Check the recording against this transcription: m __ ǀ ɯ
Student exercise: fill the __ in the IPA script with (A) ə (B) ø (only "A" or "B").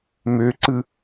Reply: B